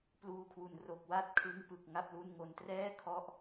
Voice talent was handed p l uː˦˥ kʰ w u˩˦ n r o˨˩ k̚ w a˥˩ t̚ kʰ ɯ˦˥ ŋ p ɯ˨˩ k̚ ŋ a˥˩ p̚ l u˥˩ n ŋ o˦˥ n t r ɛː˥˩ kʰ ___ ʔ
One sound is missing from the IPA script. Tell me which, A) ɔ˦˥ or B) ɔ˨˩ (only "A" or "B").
A